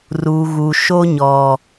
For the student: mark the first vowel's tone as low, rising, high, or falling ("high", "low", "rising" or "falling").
low